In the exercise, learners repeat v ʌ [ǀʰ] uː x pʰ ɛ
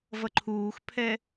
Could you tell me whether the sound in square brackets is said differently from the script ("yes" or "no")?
yes